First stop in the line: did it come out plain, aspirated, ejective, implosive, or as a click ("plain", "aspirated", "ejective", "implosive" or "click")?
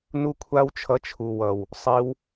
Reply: aspirated